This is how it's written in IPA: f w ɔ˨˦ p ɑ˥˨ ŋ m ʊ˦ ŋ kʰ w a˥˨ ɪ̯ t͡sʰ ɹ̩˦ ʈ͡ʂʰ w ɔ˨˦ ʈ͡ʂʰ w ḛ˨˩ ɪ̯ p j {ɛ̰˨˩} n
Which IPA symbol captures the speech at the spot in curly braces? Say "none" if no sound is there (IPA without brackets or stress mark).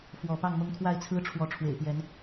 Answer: ɛ˨˦